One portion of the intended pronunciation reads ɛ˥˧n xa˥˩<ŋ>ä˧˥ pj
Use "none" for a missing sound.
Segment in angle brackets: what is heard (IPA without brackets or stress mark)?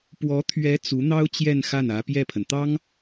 n